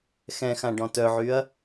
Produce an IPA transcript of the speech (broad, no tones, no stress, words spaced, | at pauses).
xɛ̃xã ɖɔ̃tœʕyɐ̯